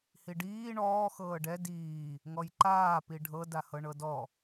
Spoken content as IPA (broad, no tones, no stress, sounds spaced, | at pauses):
h i ɖ iː ɳ ɔː x ɤː ɖ ɛ d iː | ŋ ɔ j ǃ aː p i ɖʱ ɤ d a h ɤ ɳ ɤ d ɔ